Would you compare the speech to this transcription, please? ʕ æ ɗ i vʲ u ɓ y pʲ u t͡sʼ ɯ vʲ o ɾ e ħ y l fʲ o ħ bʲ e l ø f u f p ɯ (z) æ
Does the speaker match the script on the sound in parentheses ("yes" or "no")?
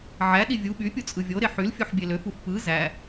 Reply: yes